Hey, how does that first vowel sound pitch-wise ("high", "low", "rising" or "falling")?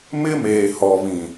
high